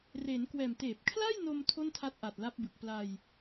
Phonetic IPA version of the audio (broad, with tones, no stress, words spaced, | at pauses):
reː˩˦nkwɛː˨˩m teː˨˩p̚kʰla˥˩jno˧m tʰo˥˩ntʰa˦˥t̚ʔa˨˩t̚ la˦˥p̚bɯ˨˩k̚ pla˧j